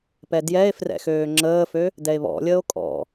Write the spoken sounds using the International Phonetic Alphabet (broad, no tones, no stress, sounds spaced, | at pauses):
p ɛ d j ɛ e̯ f r ɛ̰ x øː ŋ͡ǁ əː f ø | d ɛ e̯ β ɔ̰ lʲ əː o̯ kʼ ɔ̰